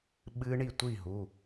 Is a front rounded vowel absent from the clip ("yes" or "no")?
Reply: yes